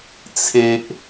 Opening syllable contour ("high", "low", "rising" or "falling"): low